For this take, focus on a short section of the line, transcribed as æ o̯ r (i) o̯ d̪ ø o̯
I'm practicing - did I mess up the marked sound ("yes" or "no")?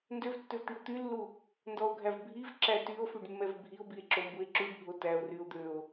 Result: yes